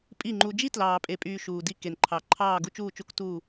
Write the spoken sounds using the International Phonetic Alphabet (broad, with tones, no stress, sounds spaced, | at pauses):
pʼ i˦˨ ŋ͡ǃ u˧ d͡ʒ i˦ t l ɑː˨ pʼ e˨ pʼ yː˨ ʃ uː˨ d i˧ k e˨ n ǃʰ ɑ˨ ǃʰ ɑː˦˨ ɡ u˦ t͡ʃ uː˦˨ t͡ʃ u˦ k t u˦˨